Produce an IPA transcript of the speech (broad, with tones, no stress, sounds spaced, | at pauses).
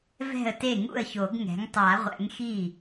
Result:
v ɛ̤˥˩ ə̯ t e˥˩ ŋ ṵ˥˩ ə̯ ç o˨˩˦ ɡ ŋ ɛ̤˩˥ ŋ tˤ a˨˩˦ ʁʷ ɛ̰˩˥ ŋ x i˥˩